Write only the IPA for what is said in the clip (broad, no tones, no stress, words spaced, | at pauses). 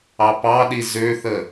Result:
ɑpɑɗi zøθə